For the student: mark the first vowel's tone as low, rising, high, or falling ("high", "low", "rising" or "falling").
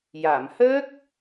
low